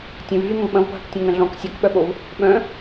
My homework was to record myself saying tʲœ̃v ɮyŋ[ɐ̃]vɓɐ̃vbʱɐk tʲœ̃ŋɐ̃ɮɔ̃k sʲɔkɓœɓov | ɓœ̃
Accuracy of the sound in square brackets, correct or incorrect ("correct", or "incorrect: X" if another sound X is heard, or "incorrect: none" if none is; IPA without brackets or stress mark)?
incorrect: ə̃